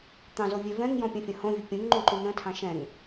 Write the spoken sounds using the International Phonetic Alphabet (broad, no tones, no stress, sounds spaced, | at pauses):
t̪ ɑ̃ z o vʲ e v ɛ̃ ŋ j ɔ̃ pʲ ə̃ fʲ ə̃ h õ vʲ ʊ pʲ ũ ŋ ŋ͡ǃ ũ ǃ ũ n̪ ə̃ tʰ ɑ̃ ʃ ɛ̃ ŋ